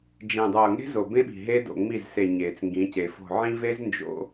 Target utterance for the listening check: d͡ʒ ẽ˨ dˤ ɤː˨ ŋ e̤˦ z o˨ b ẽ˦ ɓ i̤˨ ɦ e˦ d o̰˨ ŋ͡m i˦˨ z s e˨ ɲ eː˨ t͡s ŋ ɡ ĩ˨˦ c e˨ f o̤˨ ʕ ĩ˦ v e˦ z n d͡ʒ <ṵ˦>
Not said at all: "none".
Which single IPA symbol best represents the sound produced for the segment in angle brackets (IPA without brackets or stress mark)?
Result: o̰˦